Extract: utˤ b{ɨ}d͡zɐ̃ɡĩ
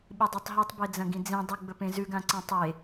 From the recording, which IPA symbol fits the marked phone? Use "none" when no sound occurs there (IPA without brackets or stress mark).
e